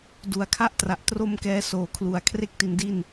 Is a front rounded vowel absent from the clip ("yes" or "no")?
yes